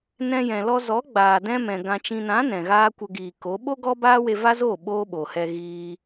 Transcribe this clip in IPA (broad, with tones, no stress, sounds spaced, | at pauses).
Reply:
n ɛ̃˧ j ɛ̃˨ l ɔ˧ z ɔ˨˦ ɡ͡b aː˨ d ɛ̃˧ m ɛ̃˨ ɡ ã˨ t͡ʃ ĩ˨ n ã˨˦ n ɛ̃˨ ɣ aː˦ kʷ ə˧ ɡ iː˨ k o˨˦ ɓ o˦ ɡ ɔ˦ b aː˦ w e˧ v a˦ z oː˦˨ ɓ oː˦ ɓ o˨ h ɛ˧ ɣ iː˧